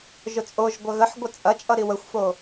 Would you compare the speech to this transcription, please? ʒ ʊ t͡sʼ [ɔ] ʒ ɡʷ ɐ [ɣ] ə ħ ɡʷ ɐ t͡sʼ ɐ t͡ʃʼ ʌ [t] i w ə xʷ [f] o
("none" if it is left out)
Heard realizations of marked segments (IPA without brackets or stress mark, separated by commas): o, ɣ, ɾ, f